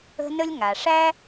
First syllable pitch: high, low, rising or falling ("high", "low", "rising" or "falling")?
high